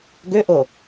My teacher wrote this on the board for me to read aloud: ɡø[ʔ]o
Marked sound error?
no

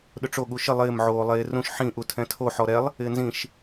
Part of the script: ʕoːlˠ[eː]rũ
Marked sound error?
no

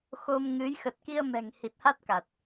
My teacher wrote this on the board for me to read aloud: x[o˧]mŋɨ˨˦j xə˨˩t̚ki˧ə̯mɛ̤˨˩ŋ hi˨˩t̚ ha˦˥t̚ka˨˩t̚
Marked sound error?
no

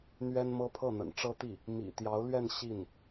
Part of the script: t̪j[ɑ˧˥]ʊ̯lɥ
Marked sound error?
no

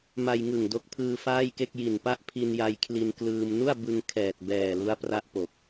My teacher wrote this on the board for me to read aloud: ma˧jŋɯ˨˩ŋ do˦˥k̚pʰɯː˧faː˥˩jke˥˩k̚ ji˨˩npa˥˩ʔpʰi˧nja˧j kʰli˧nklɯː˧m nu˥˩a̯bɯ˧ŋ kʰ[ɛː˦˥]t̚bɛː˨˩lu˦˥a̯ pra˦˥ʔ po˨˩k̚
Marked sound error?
yes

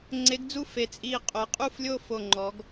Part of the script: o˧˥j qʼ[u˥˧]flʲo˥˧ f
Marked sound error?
no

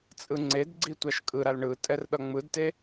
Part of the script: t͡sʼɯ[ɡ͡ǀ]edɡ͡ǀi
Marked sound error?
yes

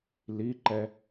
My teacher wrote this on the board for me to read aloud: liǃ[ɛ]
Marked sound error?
no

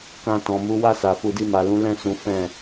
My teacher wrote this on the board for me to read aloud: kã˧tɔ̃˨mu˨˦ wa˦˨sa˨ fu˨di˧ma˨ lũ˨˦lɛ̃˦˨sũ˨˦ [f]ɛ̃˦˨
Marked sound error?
no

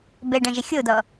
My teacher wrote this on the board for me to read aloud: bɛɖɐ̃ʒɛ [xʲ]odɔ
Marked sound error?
no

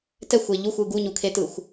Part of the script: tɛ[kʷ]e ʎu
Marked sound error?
yes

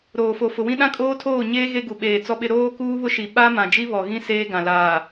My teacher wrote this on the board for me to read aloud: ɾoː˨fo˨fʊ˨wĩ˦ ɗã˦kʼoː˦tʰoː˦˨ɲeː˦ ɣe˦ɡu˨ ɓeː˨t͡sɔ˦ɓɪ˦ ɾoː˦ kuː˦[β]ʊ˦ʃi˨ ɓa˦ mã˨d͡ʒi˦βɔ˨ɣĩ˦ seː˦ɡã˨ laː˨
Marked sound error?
no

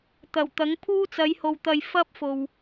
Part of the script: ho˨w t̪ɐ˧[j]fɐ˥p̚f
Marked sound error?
no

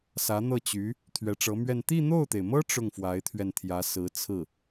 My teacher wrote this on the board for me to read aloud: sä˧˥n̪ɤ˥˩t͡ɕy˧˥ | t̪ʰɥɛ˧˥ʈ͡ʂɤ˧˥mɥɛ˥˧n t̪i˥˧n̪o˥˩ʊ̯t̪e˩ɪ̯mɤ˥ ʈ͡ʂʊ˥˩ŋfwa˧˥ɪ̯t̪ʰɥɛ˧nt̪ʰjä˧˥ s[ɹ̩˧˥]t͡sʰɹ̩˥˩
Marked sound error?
no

